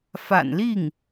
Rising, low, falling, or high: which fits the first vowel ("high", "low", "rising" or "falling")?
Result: low